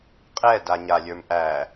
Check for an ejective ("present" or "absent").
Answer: present